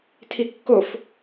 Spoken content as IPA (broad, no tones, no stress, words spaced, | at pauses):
tʰikːof